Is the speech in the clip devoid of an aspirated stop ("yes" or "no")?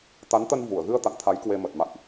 no